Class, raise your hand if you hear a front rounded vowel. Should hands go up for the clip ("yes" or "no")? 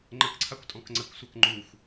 no